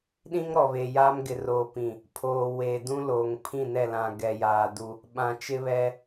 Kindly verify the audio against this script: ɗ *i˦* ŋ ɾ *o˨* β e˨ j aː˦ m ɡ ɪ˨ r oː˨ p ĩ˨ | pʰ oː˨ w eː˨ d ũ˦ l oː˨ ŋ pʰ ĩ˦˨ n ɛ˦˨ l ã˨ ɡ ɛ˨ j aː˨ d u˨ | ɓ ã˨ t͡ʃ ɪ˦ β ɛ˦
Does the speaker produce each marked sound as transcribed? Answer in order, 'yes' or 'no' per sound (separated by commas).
no, no